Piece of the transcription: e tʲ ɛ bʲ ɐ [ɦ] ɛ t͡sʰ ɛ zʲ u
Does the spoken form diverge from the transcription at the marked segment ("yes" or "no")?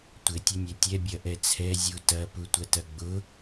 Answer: yes